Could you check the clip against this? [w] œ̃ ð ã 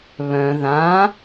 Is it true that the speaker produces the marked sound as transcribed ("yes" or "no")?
no